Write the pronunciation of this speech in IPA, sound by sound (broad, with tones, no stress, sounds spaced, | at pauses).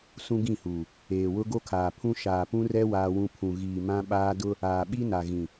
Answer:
s ũ˦ ɡ ĩ˦˨ h uː˨ | eː˨ w ʊ˦ ɡ o˦ kʰ aː˨ pʰ ũ˦ ʃ aː˨ p ũ˦ r ɛ˦ w aː˦ w ũ˦ pʰ ũ˨ ɣ iː˨ m ã˦ ɓ aː˦ d ʊ˦ | aː˨ ɓ i˦ n a˨ ɣ ĩ˨